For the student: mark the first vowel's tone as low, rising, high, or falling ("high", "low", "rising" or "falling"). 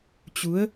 rising